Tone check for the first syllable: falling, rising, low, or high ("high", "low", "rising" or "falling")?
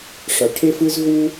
low